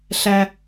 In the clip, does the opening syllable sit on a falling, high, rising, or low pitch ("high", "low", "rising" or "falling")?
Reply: low